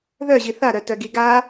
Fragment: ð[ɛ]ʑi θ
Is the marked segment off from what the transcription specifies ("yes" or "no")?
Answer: yes